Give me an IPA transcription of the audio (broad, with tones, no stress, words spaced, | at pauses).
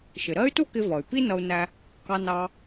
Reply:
ʃɪ˩ɾɜ˥y̯tu˥kɪ˧ vʌ˩y̯ pi˥nʌ˧u̯næ˧ | kɑ˧nɑ˧